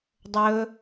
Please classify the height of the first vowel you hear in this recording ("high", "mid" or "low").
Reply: mid